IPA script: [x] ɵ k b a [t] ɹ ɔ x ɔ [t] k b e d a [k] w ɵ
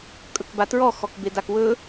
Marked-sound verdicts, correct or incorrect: incorrect, correct, incorrect, correct

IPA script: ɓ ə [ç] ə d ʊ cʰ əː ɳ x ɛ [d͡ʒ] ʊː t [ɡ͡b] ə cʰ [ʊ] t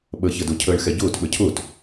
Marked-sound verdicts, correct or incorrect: correct, incorrect, incorrect, incorrect

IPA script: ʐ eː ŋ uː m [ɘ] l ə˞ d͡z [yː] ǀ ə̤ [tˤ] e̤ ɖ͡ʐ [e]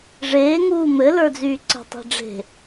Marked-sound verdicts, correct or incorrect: correct, correct, correct, incorrect

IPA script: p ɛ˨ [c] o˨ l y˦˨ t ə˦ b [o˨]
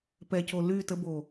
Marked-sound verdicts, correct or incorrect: correct, correct

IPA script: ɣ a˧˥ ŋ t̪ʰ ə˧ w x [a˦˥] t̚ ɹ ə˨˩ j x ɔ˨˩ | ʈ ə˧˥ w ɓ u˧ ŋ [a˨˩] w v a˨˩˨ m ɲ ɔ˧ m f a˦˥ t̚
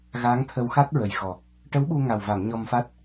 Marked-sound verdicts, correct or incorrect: correct, correct

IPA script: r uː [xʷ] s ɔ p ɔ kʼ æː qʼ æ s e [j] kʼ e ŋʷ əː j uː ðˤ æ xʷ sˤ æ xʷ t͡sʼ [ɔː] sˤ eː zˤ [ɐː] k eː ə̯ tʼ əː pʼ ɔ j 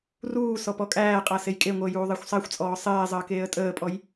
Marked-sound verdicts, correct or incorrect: incorrect, correct, correct, incorrect

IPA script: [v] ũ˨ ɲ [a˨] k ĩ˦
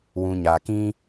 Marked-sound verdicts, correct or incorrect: incorrect, correct

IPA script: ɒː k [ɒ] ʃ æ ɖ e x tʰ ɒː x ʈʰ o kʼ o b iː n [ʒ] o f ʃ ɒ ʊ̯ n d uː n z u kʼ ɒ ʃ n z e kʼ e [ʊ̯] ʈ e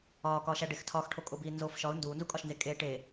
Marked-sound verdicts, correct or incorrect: incorrect, incorrect, incorrect

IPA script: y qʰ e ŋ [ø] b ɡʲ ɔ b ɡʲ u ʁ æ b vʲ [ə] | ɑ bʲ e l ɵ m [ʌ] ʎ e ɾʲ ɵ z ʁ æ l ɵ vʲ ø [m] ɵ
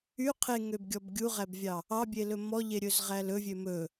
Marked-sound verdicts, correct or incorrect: correct, incorrect, incorrect, correct

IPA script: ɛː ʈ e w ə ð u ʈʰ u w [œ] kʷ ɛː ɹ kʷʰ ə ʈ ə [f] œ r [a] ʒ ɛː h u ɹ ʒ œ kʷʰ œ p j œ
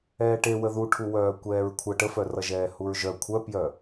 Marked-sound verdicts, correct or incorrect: incorrect, correct, incorrect

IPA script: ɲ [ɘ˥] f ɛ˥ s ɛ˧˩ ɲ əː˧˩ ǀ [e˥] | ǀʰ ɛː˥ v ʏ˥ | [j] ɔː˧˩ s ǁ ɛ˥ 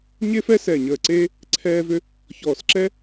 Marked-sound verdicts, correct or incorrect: incorrect, correct, incorrect

